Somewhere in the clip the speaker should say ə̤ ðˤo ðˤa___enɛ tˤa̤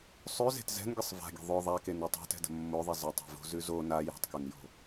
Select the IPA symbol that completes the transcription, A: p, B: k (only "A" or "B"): B